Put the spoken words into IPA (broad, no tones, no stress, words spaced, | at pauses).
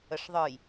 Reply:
əʂðˤɯj